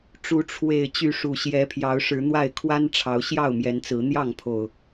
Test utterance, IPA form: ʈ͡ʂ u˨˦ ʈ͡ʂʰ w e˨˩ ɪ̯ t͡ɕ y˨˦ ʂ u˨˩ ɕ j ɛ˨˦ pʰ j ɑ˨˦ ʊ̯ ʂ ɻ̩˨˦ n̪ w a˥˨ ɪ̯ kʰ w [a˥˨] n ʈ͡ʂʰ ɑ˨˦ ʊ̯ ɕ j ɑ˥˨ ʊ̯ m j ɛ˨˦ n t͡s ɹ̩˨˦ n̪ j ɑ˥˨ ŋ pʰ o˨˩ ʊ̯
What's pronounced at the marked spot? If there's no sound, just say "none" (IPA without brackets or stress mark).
a˦